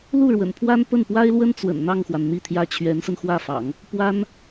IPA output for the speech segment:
lu˥˩ɻwə̰˨˩npʰwa˥n pə˥˩npwa˥ɪ̯lwə˥n t͡swə̰˨˩nn̪ɑ˥˩ŋxwa˩n n̪i˥˩t̪ʰjä˥ t͡ɕʰɥɛ˧˥nsə˧nxwä˥˩fɑ̰˨˩˦ŋ | pwa˥n

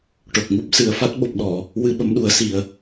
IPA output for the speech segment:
ʈo˨˩k̚ŋu˦˥p̚ sɨ˨˩ə̯fa˦˥t̚ ɓo˨˩p̚ɗɔ˨˩˨ | wɨ˧ɓə˧˥mɗu˨˩˦ə̯si˨˩ə̯

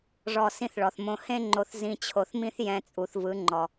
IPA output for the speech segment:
ʐɔ˨ sĩ˦θɭɔ˨θmõ˦ hẽ˦ŋ͡ǃo˨θ zĩ˨t͡ɕʰo˨θmĩ˦θ jɛ̃˦t͡sʼu˨θvɯ˨˦ ŋ͡ǃɔ˨

